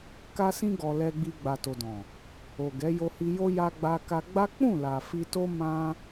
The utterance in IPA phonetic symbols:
ka˧sĩ˧ɡɔ˨ lɛ˨ɡ͡bi˨ ɡ͡ba˨to˨dɔ̃˨ | o˨ɡɛ˨˦jo˧hi˧ jo˧ ja˧ɡ͡ba˧ka˧ɡ͡ba˦ k͡pũ˦˨la˨ fi˧to˦ mã˧

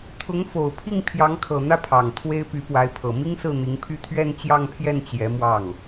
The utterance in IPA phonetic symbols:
t̪ʰʊ˧˥ŋfo˨˩ʊ̯pʰi˥˩ŋ pʰjɑ˧˥ŋkʰɤ˨˩n̪ä˥˩ pʰɑ˨˩ŋt̪ʰwe˥ɪ̯ py˧˥pwa˧˥ɪ̯pʰɤ˨˩ mi˥ŋsɹ̩˥˩n̪i˧˥ŋpʰy˥˧ t̪ʰɥɛ˥˧nt͡ɕjɑ˥˧ŋpʰjɛ˥˩n t͡ɕjɛ˧˥mwɑ˥˩ŋ

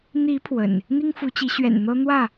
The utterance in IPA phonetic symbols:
n̪i˨˦ pʰwə̰˨˩n | n̪i˦ŋfu˨˦t͡ɕi˨˦ ɕɥɛ̰˨˩nn̪ɤ˦ n̪wä˥˨

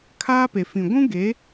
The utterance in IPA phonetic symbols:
kʰaː˦pe˨fĩ˨ ɡʷũ˦ɡe˨˦

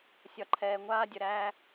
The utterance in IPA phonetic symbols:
sʲɒ˨ǃʰɛː˨ŋʷaː˦dʲə˨ ɾæː˧

